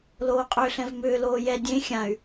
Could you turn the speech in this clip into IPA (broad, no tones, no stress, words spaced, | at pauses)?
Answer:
loːqʼʏːɬɛ̃vmʏː loːjɛ dʲẽ xʲãy̯